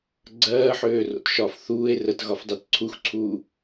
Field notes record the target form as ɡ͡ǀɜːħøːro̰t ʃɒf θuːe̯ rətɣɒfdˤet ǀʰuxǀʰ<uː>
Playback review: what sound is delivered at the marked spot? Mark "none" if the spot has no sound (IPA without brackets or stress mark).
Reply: uː